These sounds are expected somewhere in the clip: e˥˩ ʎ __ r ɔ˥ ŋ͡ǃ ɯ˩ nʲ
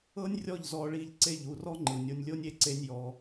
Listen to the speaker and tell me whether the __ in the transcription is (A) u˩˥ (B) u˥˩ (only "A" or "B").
B